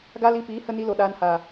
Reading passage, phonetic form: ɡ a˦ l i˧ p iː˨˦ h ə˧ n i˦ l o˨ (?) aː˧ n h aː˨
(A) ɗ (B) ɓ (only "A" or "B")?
A